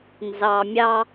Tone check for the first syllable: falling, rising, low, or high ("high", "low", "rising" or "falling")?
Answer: low